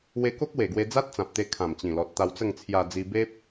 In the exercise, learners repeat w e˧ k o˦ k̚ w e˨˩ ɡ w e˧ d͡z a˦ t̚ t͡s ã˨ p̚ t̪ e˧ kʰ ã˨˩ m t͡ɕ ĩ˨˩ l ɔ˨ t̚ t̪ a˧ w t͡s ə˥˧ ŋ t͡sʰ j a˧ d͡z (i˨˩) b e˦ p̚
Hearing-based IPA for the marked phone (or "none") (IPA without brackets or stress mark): i˧